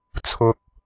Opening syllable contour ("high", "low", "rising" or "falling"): low